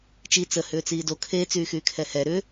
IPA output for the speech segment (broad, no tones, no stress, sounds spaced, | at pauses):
t͡ʃ i t͡s ə h ʏː t͡s iː d o kʰ e t͡s yː x yː kʰ ɛ h ɛ ɾ ʏ